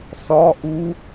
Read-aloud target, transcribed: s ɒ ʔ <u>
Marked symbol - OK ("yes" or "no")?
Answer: yes